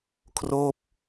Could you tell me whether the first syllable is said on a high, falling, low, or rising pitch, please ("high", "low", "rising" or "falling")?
falling